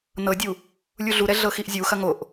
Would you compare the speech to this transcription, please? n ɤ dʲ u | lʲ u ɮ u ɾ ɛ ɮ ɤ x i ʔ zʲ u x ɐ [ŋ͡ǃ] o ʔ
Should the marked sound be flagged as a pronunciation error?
yes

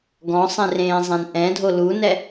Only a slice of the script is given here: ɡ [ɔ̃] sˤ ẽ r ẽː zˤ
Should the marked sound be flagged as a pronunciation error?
no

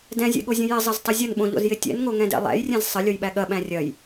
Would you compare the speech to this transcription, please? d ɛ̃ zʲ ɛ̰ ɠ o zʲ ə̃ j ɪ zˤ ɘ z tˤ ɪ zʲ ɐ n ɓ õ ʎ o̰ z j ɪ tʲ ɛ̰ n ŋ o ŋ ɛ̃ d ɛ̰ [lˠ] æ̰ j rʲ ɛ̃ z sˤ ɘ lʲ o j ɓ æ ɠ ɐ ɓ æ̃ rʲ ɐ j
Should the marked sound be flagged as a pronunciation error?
no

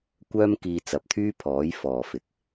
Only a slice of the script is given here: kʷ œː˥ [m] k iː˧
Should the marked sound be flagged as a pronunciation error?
no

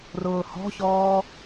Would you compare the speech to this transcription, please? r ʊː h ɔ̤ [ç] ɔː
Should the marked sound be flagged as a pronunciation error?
no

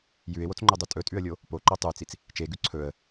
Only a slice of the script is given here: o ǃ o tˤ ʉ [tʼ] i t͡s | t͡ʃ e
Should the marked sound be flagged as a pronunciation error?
yes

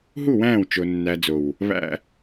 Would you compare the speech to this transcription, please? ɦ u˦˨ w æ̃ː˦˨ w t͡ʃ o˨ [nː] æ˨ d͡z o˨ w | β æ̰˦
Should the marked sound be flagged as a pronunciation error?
no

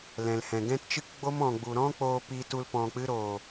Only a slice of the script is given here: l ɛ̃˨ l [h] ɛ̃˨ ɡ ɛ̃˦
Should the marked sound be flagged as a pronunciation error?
no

